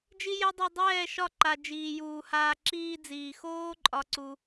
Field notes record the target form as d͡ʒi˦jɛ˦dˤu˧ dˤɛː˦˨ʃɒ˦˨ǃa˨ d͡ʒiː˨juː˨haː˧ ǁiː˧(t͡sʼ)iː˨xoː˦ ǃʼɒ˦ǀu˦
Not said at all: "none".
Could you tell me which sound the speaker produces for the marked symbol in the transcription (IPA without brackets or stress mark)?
d͡z